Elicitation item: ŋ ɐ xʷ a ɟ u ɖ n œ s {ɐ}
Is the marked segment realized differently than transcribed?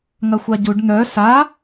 yes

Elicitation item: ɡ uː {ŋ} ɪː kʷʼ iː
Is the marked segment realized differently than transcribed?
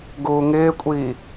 no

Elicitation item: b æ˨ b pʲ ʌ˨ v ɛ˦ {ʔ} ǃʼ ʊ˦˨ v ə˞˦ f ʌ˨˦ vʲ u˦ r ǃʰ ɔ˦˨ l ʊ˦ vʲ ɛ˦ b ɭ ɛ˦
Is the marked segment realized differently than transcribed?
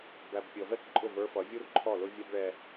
yes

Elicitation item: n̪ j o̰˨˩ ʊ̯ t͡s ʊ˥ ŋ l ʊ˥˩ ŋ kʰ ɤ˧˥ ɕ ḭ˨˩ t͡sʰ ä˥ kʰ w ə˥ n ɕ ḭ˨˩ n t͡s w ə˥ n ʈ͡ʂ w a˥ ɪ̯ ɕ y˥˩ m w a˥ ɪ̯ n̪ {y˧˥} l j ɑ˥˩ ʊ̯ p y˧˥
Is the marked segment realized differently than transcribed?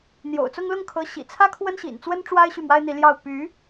yes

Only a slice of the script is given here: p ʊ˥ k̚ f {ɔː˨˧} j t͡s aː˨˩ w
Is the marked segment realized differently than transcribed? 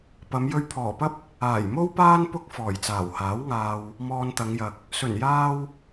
yes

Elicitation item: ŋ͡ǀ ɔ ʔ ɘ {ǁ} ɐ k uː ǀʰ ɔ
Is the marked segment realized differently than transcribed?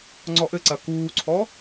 yes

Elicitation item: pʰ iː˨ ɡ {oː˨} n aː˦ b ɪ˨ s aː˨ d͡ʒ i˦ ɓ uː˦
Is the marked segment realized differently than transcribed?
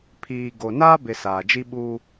yes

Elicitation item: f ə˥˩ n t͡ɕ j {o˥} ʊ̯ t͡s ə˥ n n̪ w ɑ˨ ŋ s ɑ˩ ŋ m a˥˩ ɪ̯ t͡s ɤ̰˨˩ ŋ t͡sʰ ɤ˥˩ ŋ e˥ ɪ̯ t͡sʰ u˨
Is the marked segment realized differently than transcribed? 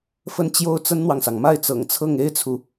no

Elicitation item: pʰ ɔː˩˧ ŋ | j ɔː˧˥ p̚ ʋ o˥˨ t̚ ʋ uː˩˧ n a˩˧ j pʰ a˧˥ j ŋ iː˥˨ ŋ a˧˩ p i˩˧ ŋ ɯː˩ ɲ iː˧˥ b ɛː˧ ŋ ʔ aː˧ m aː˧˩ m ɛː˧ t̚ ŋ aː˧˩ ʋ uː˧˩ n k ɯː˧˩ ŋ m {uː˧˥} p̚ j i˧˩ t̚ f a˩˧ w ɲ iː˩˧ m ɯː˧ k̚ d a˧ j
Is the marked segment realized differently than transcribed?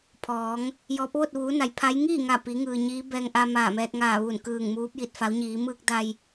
no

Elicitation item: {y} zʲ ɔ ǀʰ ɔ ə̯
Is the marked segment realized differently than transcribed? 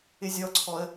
yes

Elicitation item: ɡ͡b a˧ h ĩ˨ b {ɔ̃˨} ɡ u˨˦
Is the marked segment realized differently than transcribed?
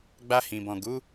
no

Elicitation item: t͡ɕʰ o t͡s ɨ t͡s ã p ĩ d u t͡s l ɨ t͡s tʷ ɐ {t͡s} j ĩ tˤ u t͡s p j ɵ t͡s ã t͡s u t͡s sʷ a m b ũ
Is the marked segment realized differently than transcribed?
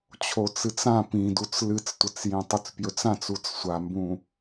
no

